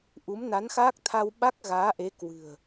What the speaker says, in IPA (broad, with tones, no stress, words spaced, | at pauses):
ʔu˨˦mna˨˦nxaː˦˥k̚t̪ʰa˧w ɓa˦˥k̚ɣaː˨˦ʔe˨˦ kwɨ̤˨˩ə̯